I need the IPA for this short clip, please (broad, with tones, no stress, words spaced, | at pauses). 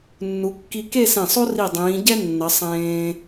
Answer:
nːu˩˧kːi˧ ke˥˧sẽ˧˩sˤo˥ ri˧˩dˤĩː˩˧ɟɛ˥nːʌ˩˧ sˤẽː˧